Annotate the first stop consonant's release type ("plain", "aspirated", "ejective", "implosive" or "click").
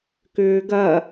plain